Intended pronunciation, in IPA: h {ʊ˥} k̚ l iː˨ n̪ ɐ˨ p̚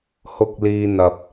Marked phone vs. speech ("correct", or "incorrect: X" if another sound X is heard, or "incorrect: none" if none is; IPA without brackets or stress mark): incorrect: ʊ˨